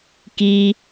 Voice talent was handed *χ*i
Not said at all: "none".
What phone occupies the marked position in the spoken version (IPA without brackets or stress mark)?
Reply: k